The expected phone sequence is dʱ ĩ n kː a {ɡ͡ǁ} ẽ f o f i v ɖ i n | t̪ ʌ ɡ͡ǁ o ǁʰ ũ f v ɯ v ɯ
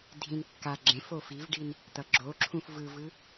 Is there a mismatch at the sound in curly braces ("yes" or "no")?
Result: no